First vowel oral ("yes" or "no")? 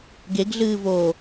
yes